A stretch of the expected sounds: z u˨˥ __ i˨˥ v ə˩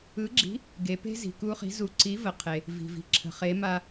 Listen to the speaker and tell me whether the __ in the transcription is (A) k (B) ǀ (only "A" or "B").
B